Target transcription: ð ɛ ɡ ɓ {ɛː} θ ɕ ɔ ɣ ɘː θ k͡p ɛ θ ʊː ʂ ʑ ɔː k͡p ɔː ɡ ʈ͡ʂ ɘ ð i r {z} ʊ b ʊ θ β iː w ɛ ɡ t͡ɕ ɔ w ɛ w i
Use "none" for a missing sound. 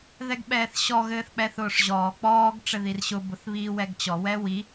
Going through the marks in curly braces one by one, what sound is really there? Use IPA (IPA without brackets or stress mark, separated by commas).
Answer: ɛː, ɕ